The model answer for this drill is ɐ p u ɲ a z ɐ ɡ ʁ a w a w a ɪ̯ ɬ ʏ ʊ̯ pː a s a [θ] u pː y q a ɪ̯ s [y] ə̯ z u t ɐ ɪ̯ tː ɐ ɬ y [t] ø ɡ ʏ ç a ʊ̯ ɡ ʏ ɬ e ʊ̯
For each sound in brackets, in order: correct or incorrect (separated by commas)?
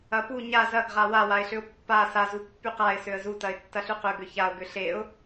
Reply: incorrect, incorrect, incorrect